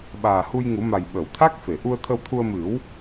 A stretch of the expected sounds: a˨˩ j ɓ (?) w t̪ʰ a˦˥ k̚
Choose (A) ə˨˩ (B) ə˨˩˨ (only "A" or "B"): B